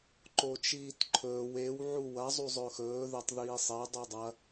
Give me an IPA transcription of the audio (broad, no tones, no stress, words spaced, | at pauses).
ǃot͡ʃiːtǃʰɵːw ew ʕuwɐ zˤuzˤɵxɵː ðetˤðiːsˤe dˤudˤɐ